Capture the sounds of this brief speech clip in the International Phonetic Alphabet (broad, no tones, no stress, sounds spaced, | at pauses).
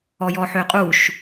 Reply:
ɔ j ɔ ħ ø qʼ u ʃ